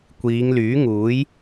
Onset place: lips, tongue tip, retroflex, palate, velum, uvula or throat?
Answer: velum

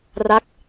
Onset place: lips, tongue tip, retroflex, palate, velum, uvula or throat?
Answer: tongue tip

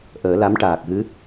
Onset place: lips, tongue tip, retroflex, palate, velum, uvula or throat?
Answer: throat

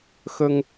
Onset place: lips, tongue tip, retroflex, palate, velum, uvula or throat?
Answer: velum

